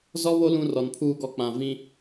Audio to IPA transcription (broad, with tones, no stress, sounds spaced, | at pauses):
z ɔ˦ β o˦ l ũ˦ r ɔ˨ n pʰ uː˦ ɡ ɔ˦˨ k͡p ã˨ v ĩ˦